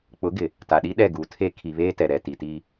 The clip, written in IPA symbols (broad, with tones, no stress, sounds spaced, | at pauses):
k͡p ʊ˨˦ ɡ ɪ˨ | t a˨ ɗ i˦ ɗ ɛ˦˨ ɡ uː˨ tʰ e˦ kʰ i˨ β eː˦ t ɛ˨ ɾ ɛ˨ t i˨ t iː˦